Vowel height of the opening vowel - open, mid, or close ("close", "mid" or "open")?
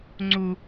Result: close